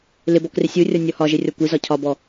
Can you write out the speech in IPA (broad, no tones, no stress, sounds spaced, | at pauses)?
l ɪ b ɔ k r ɪ sʲ u rʲ ɒ nʲ ɔ h ɒ ʒ ɪ rʲ ɔ kʷ i z ɒ cʰ ɒ b ɔ